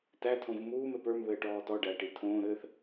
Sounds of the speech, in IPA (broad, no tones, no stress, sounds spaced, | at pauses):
t æ tʰ õ v m uː m ɛ p ə˞ m β ɘː ʈ ɔː t ɔ ɖ æ ʈ i tʰ õː ɾ ɘː θ